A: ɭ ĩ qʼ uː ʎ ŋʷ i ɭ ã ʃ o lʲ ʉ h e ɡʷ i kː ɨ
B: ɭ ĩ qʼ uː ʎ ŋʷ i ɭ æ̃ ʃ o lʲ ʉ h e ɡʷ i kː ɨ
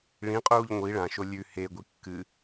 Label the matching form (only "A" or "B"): A